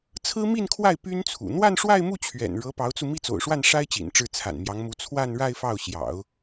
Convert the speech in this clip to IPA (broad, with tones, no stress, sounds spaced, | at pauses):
t͡sʰ ɹ̩˥ m i˥˧ n kʰ w a˥˩ ɪ̯ p y˥ n t͡sʰ ṵ˨˩ n̪ w a˥˧ n ʂ w a˥˧ ɪ̯ m u˥˩ t͡ɕʰ ɥ ɛ̰˨˩ n ɻ ɤ˧˥ p ɑ˧˥ ʊ̯ t͡s u˧ m i˥˩ t͡s o̰˨˩ ʊ̯ ʂ w a˥˩ n ʂ a˥ ɪ̯ t͡ɕ ḭ˨˩ n ʈ͡ʂ ɻ̩˥˩ t͡sʰ a̰˨˩ n m j ɑ˧˥ ŋ m u˧˥ t͡sʰ w a˥˧ n ɻ a˥˧ ɪ̯ f ɑ˥˩ ʊ̯ ɕ j ɑ̰˨˩˦ ʊ̯